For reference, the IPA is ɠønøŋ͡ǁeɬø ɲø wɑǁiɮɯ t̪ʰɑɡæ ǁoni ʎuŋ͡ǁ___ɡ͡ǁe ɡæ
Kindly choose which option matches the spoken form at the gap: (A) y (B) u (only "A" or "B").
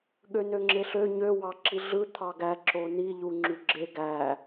A